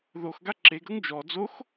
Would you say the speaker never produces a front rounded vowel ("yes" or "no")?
yes